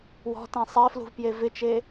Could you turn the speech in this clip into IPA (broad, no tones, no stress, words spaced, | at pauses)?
wɔ̤tẽ sˤeflṳvpje vɪt͡ʃe